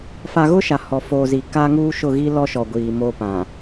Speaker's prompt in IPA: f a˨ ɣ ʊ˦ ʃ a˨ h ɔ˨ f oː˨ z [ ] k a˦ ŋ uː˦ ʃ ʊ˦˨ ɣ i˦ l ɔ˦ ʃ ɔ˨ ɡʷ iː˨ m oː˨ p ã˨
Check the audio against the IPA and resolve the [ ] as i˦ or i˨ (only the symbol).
i˨